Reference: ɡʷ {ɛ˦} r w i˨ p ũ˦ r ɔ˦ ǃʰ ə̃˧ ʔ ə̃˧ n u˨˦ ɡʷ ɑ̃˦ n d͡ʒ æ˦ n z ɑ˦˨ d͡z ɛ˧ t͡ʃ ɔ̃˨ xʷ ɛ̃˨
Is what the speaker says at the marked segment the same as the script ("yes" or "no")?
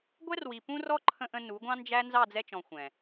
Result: yes